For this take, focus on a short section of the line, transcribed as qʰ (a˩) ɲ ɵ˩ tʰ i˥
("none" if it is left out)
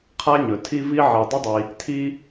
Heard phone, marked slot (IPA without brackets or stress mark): a˥